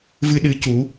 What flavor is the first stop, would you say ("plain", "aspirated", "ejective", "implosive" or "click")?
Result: implosive